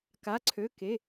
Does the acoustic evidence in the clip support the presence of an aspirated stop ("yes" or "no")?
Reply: yes